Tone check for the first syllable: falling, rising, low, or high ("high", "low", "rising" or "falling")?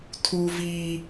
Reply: high